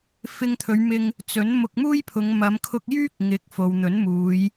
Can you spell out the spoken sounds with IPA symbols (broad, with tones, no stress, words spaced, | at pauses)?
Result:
fɪ˧ŋt̪ʰɵ˨˧ɥmɪ˧ŋ | t͡sɵ˨˥n mʊ˧k̚muː˥jpʰʊ˨˧ŋ mɐ˨˧mkʰʊ˧k̚ jyː˥k̚ ŋɪ˨˥k̚ fo˨wn̪ɵ˨˥nmuː˨˧j